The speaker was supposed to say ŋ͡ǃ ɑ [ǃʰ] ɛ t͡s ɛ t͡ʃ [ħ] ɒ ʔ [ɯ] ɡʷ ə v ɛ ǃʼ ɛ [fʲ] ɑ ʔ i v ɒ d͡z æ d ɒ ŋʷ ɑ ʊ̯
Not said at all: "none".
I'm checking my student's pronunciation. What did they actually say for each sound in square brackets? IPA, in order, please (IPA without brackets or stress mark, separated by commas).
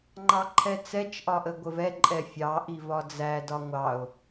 ǃʰ, ʔ, ə, fʲ